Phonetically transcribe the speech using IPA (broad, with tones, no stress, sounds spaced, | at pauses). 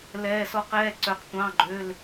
l ɛː˧˥˧ s ɔ˥ q ɛː˧˥˧ ǀ œ˧ q tʷ ɑ̃˧˥˧ ɡ͡ǃ ø˧˥˧ l